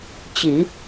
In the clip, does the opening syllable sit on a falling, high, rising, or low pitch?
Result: low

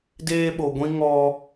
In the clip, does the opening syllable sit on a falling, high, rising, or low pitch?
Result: high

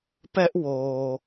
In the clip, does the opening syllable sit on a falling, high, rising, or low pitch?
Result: high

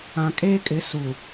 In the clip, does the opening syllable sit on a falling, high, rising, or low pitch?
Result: low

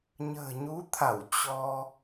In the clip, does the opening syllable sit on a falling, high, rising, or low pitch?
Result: low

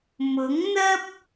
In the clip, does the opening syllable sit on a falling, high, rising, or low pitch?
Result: rising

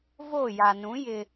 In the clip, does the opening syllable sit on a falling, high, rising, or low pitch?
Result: falling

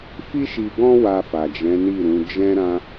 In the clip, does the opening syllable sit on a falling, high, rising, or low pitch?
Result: high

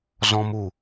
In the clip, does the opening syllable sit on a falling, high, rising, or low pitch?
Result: high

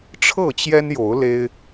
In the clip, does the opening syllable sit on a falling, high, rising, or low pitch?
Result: falling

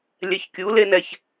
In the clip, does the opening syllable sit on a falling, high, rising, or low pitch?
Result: low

